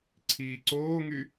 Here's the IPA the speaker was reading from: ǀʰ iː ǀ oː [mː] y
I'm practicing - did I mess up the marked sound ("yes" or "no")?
yes